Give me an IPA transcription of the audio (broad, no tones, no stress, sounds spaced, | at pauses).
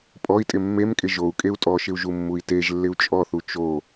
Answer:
pʼ ɔ i̯ tʼ ɪ mː e m kʼ ɪ ʒ o u̯ kʼ e u̯ tʼ ɔ ʃ ɪ u̯ ʒ u mː u i̯ t e ʒ lː ɪ u̯ t͡ʃʼ ɔ θ u t͡ʃ o